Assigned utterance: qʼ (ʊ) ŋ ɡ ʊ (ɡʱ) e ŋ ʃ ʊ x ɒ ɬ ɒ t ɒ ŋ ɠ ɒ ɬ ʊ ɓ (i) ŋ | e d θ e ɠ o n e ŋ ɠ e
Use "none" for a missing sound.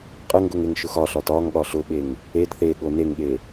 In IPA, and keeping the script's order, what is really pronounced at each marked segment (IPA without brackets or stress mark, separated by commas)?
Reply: ə, ŋ, e